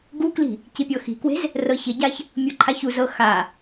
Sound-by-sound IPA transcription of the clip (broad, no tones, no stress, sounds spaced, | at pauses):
ɡ u k l i̤ | c i pʲ ɤ x i̤ k w e̤ z | r ɤ ç ɪ ɟ a ç | mʲ u ǃʰ a ç u z ɤ x a